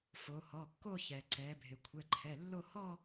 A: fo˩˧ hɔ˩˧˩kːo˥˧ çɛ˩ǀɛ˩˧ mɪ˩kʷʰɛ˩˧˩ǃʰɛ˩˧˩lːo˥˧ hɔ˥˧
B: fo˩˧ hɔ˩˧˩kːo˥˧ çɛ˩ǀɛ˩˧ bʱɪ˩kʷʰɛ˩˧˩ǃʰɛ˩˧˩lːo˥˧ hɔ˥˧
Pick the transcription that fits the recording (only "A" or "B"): B